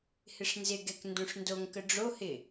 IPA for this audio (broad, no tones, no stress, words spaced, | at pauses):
hɪʂnzɪɡɛk ndõʂndoŋkə ɖ͡ʐohɪ